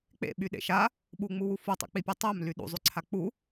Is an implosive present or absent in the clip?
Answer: present